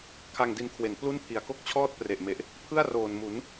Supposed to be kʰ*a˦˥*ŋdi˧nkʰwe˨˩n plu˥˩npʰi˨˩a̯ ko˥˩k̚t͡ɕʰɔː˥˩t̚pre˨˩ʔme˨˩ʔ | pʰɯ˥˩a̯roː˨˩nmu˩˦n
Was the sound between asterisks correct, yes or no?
no